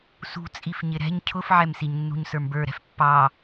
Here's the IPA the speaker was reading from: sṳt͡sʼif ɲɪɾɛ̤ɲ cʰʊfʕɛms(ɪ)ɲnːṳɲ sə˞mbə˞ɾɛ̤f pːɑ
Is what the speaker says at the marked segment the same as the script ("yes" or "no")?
no